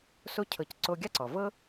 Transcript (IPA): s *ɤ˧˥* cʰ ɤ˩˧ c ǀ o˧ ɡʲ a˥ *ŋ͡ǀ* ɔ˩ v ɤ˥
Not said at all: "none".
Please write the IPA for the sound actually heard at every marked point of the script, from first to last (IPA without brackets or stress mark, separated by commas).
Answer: o˧˥, ǀ